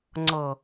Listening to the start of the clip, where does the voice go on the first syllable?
low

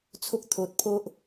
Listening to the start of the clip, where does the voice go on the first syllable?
high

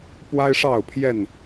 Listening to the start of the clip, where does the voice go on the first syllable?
high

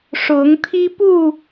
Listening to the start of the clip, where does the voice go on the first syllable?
rising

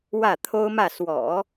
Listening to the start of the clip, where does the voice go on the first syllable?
falling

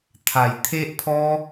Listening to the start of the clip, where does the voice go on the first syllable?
low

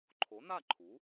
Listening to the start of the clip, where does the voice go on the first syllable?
rising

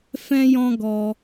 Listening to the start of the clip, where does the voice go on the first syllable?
high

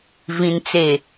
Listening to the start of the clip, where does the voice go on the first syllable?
low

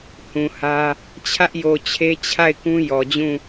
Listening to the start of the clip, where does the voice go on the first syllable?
low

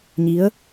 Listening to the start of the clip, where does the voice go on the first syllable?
rising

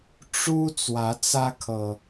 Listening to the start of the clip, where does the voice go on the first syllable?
high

